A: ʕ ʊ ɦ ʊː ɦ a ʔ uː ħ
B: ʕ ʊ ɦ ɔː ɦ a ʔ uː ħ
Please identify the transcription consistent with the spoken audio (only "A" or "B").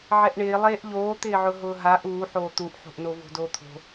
A